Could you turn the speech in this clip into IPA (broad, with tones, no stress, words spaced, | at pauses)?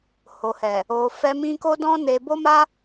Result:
ho˨hɛ˨ | o˨ fɛ˧ mĩ˧ko˦dɔ̃˦ne˧ bo˦ma˦